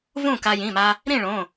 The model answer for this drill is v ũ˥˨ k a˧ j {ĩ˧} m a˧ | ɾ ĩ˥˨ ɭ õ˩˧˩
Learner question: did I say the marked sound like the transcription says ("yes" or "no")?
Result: no